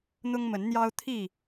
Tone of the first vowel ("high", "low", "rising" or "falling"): high